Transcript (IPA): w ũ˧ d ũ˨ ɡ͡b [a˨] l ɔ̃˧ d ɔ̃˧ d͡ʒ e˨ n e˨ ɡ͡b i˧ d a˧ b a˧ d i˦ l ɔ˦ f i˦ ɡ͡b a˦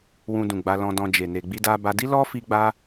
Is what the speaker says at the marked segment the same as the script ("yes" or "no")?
no